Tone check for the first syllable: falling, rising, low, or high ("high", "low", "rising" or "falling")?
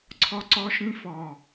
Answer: high